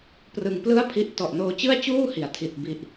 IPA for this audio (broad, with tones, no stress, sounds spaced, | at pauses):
p r ɯ˧ ŋ p l ɯ˥˩ a̯ pʰ i˦˥ ʔ t ɔ˨˩ ʔ n oː˧ t͡ɕ ɯ˥˩ a̯ t͡ɕ uː˥˩ h i˩˦ a̯ tʰ i˨˩ t̚ b i˨˩ ʔ